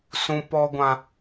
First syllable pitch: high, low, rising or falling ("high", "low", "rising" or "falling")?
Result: low